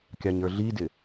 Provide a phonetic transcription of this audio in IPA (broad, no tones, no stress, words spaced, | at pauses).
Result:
kʲɑɲə˞ɮidɪ